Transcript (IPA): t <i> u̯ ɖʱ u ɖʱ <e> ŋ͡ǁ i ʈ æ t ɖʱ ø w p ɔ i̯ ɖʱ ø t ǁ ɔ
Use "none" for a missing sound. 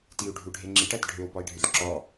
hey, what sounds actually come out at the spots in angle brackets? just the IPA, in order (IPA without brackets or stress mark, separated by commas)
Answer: i, e